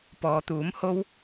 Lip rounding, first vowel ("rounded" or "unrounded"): rounded